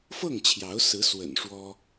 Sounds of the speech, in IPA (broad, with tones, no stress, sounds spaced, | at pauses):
f ɤ˥˩ ŋ t͡ɕʰ j ɑ˧˥ ʊ̯ s ɹ̩˧˥ s w ə̰˨˩ n ʂ w ɔ˥